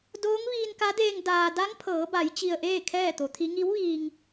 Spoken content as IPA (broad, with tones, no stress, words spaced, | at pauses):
doː˧˥ŋ ʋiː˧nka˧˥deː˧ŋ daː˧ da˧˥ŋpʰɤː˩˧ba˩˧j t͡ɕi˧ə̯ʔeː˥˨ kʰɛː˥˨t̪o˩˧t̪ʰi˧˥ ŋi˧˥wʋiː˧ŋ